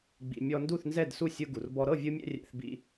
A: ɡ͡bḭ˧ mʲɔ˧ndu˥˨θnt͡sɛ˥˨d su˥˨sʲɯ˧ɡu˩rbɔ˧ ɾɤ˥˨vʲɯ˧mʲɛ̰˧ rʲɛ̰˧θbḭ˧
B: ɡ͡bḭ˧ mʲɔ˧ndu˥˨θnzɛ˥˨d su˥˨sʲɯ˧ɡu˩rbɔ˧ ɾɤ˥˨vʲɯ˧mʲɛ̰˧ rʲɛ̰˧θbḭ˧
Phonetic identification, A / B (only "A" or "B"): B